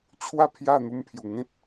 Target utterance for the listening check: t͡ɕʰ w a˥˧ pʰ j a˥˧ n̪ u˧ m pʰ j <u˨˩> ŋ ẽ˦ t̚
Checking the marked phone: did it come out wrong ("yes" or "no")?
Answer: no